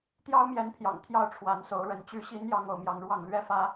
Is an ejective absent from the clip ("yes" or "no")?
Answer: yes